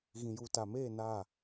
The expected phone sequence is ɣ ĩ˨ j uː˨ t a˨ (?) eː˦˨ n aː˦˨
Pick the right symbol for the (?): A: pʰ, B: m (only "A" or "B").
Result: B